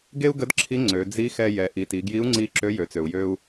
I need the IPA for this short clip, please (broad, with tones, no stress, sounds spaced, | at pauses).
ɡ e˥ u̯ ɡ ə˧˥ d ǁʰ i˧˥ ŋ͡ǀ ø˩˧ d͡z i˧˥ x ɛ˧ j ɛ˩˧ ʔ i˩˧ t i˩˧ ɡ j i˧˥ u̯ ŋ͡ǀ i˧˥ ǁ ø˧˥ j ø˩˧ t͡s ø˩ u̯ j ø˧ u̯